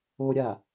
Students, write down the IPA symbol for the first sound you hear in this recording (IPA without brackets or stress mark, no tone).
o